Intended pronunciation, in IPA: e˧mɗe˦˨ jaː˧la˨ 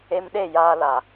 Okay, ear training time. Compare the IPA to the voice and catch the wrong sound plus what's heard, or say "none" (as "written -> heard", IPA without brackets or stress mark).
none